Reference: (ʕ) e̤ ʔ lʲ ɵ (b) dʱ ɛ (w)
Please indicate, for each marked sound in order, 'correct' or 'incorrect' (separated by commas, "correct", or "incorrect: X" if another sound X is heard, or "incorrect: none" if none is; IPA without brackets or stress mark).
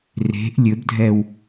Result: incorrect: r, correct, correct